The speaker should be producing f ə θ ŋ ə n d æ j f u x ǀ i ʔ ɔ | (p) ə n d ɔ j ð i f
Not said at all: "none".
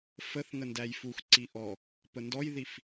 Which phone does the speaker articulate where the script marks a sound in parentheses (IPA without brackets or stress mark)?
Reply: p